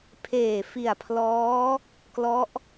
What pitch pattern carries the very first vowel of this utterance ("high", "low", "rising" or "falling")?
low